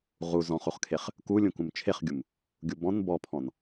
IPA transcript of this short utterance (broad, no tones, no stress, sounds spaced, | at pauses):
ʁ u z ɔ̃ χ u χ kʰ e χ | k u lʲ ũ k ũ m t͡ʃʰ e χ ɡʲ u m | ɡʲ u b ɔ̃ n b ɔ pʰ ɔ̃ n